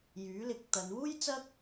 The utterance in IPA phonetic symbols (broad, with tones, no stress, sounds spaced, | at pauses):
j yː˨˥ l ɪ˨˥ k̚ t̪ ɐ˨˧ n w uː˥ j t͡s ɐ˥ k̚